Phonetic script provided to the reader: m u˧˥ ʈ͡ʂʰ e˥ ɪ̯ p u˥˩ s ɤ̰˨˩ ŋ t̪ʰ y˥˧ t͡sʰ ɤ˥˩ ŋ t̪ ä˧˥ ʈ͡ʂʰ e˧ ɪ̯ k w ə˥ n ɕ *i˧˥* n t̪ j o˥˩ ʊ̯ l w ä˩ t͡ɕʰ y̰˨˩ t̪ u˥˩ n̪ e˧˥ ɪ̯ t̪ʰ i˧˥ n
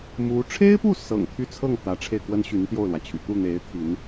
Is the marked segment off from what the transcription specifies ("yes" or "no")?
yes